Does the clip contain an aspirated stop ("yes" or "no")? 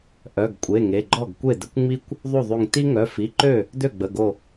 no